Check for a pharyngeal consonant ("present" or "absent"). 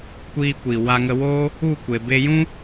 absent